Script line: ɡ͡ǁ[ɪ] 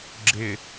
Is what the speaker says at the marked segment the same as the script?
yes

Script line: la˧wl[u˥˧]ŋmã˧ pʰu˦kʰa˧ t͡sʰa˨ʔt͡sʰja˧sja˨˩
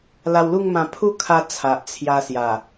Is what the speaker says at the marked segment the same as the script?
yes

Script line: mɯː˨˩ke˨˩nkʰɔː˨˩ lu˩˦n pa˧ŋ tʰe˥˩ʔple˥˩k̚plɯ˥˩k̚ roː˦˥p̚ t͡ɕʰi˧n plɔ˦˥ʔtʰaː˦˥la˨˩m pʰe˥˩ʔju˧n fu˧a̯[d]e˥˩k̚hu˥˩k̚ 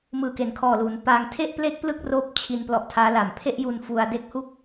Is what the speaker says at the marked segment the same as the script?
yes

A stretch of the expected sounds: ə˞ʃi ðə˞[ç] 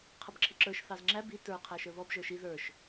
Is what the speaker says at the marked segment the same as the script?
no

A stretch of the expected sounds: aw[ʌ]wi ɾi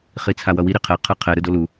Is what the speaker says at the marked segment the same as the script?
yes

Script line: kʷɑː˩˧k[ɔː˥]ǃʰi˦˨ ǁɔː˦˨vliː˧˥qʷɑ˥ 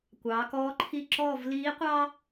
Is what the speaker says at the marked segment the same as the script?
no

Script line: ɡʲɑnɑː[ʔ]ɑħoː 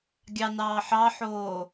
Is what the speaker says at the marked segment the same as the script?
no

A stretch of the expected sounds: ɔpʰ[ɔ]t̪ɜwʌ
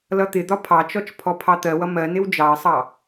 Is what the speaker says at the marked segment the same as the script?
no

